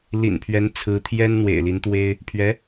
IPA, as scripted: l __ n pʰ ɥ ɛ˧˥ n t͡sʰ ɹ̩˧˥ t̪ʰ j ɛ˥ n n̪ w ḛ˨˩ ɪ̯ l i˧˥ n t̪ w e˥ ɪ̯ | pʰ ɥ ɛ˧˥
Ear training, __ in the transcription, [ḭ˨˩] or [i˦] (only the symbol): ḭ˨˩